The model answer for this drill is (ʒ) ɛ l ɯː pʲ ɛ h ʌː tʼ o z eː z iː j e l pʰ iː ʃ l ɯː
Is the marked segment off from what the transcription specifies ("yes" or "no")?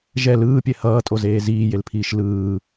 no